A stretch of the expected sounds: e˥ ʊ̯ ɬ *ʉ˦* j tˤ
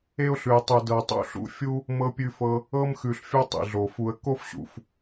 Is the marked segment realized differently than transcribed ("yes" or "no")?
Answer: yes